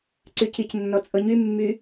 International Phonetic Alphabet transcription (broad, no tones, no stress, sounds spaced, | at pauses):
ǀ y c i c nː ɔ t͡sʼ ɤ ɲ y mː y